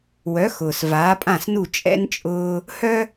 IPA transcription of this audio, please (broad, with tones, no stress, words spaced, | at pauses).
wœ˩˥xʊː˩s vaː˩˥pʼã˥˩snu˥˩ t͡ʃʼɛ̰˥n t͡ʃʼʊː˥ | hœ˥